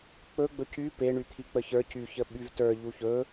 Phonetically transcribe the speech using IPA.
k͡pɵ ɡ͡bɵcy peɳyt̪ʰi k͡pəçə˞ cyçə ɓyvtə˞ ʎuçɵ

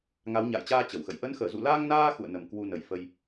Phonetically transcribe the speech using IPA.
ŋa˨˦w ɲa̰ː˧˨jt͡ɕaː˧ t͡ɕə˧˩wxə̰˧˨j ʔə˨˦nxəː˧˩ zṵ˧˨laː˧ŋnaː˧ xṵ˧˨ə̯nə˨˩m kwu˧nə˨˩j fə˧j

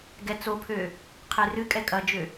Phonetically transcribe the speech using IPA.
ɡɛt͡sopʰø | qʰerɨkʼɛ kʼɐd͡ʒø

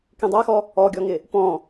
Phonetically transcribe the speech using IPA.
kĩdˤaxɔ | ɔɡʲɔŋɪ | pɔ̃

